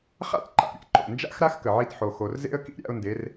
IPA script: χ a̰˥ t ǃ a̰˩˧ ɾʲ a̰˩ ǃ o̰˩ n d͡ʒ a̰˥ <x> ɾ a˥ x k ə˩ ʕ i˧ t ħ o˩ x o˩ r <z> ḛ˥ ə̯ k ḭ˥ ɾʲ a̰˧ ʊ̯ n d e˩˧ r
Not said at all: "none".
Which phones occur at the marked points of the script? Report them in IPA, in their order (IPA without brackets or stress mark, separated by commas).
x, z